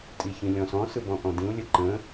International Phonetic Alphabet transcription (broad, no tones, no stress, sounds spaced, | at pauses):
tʼ i ç ĩ lʲ ɔ̃ s ɔ̃ s ɯ b ɔ̃ ʔ ɔ̃ d ĩ ʊ̯ lʲ ə ǃ ə̃